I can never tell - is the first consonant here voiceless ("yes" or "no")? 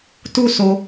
yes